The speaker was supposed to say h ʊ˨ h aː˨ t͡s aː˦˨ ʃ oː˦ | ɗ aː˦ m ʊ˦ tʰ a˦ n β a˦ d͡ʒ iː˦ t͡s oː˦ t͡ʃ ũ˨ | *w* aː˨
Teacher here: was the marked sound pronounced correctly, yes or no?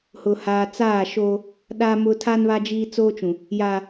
no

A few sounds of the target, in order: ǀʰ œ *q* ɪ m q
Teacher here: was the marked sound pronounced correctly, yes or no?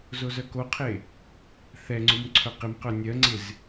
yes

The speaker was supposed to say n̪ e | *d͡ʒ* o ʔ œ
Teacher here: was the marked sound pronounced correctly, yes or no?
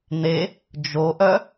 yes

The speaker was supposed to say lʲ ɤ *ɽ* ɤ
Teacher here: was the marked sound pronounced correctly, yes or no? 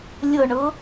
no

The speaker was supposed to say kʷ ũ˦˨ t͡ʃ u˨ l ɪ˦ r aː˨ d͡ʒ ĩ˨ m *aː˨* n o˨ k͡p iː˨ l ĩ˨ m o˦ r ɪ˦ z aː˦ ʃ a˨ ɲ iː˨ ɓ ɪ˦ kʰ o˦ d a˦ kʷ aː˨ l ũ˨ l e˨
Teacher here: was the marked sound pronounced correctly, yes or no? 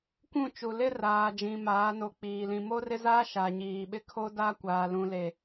no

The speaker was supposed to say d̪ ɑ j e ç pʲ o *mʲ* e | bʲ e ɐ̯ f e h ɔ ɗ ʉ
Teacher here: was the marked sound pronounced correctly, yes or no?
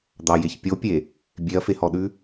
no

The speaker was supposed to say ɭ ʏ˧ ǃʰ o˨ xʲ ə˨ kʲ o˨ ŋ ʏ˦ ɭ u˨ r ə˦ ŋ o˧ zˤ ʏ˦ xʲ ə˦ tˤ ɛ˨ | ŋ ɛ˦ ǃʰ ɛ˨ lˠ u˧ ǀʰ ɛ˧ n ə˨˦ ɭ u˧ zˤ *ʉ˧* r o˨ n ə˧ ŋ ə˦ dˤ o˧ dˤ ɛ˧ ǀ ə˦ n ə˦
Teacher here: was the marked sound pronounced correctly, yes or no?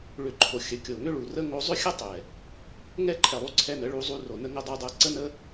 no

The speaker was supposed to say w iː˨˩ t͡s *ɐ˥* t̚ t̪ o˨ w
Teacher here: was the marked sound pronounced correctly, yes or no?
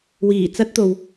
yes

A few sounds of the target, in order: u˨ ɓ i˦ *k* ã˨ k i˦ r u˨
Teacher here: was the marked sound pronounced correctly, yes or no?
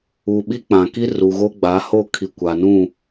no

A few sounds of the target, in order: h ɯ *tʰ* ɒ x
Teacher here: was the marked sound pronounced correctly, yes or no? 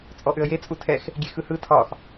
yes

